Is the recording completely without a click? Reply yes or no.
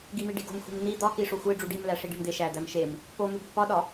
yes